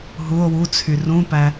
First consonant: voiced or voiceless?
voiced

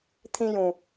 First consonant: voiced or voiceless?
voiceless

